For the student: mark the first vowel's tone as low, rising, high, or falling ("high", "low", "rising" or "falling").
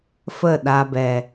falling